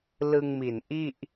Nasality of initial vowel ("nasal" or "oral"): oral